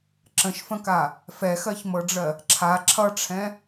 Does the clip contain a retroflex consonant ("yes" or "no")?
yes